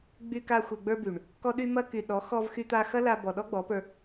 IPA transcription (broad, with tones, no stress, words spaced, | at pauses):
ɡ͡by˧ka˧ xʷe˨ɡ͡bə˞˧ by˨ɳ | kɔ˧ɗy˧mɐ˧ky˨ ɗɔ˨˦xɔ˧v xy˧t̪a˧xɐ˦ la˧ bɔ˨ɗɔ˦ɡ͡bɔ˨˦pə˞˧